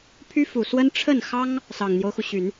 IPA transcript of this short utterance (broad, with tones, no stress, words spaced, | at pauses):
pʰy˥fu˨˩swə˥n ʈ͡ʂʰə˥˩nxɑ˥ŋ | sɑ˨˩ŋn̪jo˦ʊ̯xu˩ɕy˨˩˦n